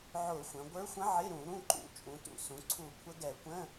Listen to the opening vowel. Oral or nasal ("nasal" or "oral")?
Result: oral